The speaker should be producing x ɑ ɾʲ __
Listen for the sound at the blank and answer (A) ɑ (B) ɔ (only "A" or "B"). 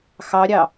A